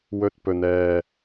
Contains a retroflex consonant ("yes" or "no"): no